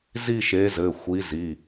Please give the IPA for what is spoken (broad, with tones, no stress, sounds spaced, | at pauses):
z i˥˧ ʃ e˨˥ z ɘ˩˧˩ xʷ i˨˥ z i˩˧˩